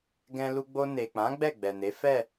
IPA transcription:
ɡ ɛ̃˧ l u˧ ɡ͡b o˧ n e˨ k͡p ã˨˦ ɡ͡b ɛ˦˨ ɡ͡b ɛ˨ n e˨˦ f ɛ˦˨

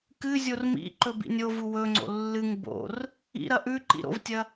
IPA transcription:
k ɨ zʲ o r m ḭ ǃ ɵ b ḭ nʲ o v u w ɵ ŋ͡ǀ o̰ lː ɨ ŋ b o̰ r | ḭ ɾ ɐ ʔ ʉ ǃ ḭ ɾ o̰ v tʲ ɐ

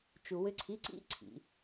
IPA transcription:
t͡ʃ u˧ w ʏ˦˥ ǀʰ i˧˥˧ ǀ ḭ˦˥ ǀʰ ḭ˩˧

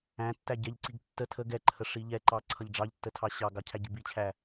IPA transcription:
æ̃ tː æ ɟ ɛ ʎ ǀ i ɡ tː ə tʰ ə ɡ ɛ ǃʰ ə ʂ i ʎ ɛ ǃ ɑ ǀʰ ʌ ʎ ɖ͡ʐ ɑ ʎ tː ə tʰ ɑ ɕ ɑ ɡ ɑ cʰ æ ɟ i b i t͡ɕʰ æ

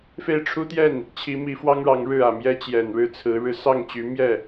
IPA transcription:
f e˥˩ ɪ̯ ʈ͡ʂʰ u˥ t̪ j ɛ˥˩ n | t͡ɕʰ i˧˥ m i˧˥ f w ɑ˥ ŋ ɻ ɑ˧˥ ŋ ɻ ɻ̩˥˩ ä˨˩ m j ɛ˥ t͡ɕ j ɛ˨˩ n ɻ ɻ̩˥˩ t͡sʰ ɹ̩˧˥ ɻ ɻ̩˧˥ s ɑ˥˩ ŋ t͡ɕ y˧˥ m j ɛ˥˩

